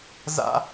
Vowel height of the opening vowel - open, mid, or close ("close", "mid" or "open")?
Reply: open